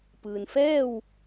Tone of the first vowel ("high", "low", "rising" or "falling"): low